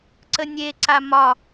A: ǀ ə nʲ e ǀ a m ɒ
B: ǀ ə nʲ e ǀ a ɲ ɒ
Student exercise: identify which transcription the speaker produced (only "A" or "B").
A